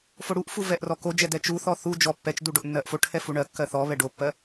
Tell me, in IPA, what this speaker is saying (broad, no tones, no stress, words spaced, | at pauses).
foɽuʔfu vɛʔrɔkod͡ʒɛ dɛt͡ʃuθɔ θu d͡ʒɔ pːɛt͡ʃdu ɖoʔnːɜʔfoʈʰɛ fuɳɜkːɜ θɔ βɛɖopːɜ